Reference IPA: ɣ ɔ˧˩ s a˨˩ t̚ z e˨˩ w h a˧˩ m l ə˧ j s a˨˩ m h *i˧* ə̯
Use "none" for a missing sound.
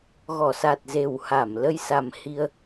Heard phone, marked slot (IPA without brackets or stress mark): i˧